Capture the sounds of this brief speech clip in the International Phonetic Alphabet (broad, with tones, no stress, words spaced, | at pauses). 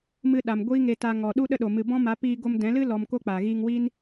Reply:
mɨ˧ɗa˨m ɡʷiː˦ŋe˧ ta˦ŋɔ˧ ɗu˦ɗə˦ɗo˨ mɨ˨bɔ̃˦ma˨˦ piː˧ɡo˧mdɛ̃˨˦lɨ˦ lɔ˧mko˦k͡pa˨ ɣiː˧ŋwiː˦n